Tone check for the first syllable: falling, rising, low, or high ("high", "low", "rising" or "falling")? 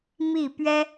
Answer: falling